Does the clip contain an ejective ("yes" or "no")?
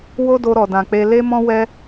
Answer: no